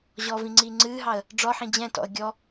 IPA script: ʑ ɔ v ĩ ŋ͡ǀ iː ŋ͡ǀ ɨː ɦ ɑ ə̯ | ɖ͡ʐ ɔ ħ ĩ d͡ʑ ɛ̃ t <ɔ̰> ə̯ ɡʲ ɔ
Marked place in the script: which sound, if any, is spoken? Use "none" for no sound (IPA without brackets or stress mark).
ɔ̰